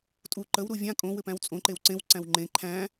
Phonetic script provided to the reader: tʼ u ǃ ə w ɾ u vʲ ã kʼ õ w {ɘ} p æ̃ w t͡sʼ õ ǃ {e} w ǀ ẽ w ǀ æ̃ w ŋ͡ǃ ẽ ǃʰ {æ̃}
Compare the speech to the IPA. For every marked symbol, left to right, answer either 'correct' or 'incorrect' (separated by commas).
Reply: correct, correct, correct